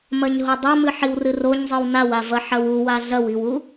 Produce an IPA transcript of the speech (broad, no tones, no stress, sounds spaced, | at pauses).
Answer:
m ɐ ɲ ɦ o dˤ ɐ m ɨ ħ i w r ɨ r o ɲ zˤ ɨ w n a w a v ɐ ħ ɐ w u w a ɮ ɐ w i w u